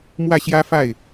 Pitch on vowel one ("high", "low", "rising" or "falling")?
falling